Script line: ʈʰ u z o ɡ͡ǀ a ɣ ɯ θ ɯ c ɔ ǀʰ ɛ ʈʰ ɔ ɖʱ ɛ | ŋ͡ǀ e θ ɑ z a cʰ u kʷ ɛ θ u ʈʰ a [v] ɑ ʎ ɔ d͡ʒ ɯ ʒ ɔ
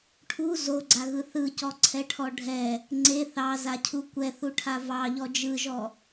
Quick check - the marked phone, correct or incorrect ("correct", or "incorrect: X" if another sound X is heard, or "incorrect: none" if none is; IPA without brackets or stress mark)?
correct